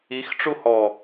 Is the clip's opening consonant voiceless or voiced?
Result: voiceless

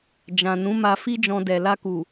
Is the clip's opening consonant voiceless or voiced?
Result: voiced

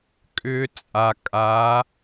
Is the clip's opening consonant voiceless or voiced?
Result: voiceless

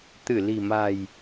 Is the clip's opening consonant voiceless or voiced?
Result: voiceless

